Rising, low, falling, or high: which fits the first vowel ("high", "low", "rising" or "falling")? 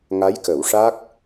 rising